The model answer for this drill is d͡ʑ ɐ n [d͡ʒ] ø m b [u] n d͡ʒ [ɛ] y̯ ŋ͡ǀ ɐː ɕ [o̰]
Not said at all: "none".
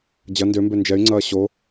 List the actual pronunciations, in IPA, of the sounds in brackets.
d, ø, ɛ, o

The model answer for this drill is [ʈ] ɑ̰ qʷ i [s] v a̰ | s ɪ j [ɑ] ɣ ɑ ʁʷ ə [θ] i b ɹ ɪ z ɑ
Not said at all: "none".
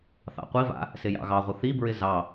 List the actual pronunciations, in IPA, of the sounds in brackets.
θ, none, ɑ̰, θ

